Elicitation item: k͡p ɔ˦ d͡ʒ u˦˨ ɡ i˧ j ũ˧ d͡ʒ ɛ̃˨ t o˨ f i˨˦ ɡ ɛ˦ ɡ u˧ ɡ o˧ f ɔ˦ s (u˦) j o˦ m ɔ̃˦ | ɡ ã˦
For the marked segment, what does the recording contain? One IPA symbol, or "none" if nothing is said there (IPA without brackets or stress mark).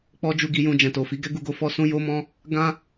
ũ˦